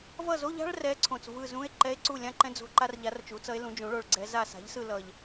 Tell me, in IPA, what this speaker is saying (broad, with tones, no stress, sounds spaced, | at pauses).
v ʌ˦˨ z o˧˥˧ ʎ a̤˥ ɭ r ɛ˧˥ ǀʰ õ˨˩ t͡s v ɯ˦˨ z ũ˧˥˧ e̯ ǃ ɛ˧˥ e̯ ǀ u˦˨ lʲ ã˥ ǃ ɛ̃˥ d͡z o̤˦˨ ǃ a˥ r ʎ a˧˥ r t͡ʃ u˩˥ t͡s ʌ˧˥ e̯ l ũ˩˥ d͡ʒ ũ˩˥ ɭ o˦˨ ɭ ɡ͡ǀ ɛ˧˥ z a˦˨ s a̤˩˥ ʎ s ɯ˦˨ l ʌ˨˩ ʎ